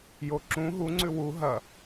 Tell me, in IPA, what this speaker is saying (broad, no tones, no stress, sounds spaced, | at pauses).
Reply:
j o ǁ ũ ɦ u ŋ͡ǀ ʉ w u ɦ ɐ